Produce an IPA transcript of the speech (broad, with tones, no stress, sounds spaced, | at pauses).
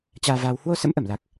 t͡ɕ aː˧ v aː˧ w h w o˧ s ə̰˧˥ m ʔ ə˧˩ m l a˨˩ k̚